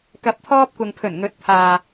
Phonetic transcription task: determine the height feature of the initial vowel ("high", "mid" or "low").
low